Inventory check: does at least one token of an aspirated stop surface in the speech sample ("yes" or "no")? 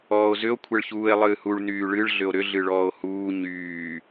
yes